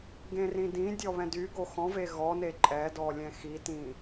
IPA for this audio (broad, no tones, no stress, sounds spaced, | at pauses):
ɡ ẽ r ĩ d ĩ dʲ ɔ β ɛ̃ d y ɡ o x ɔ̃ v e ɣ ɔ n e ǃʼ ɛ d ɔ lʲ ɛ̃ x i t ĩ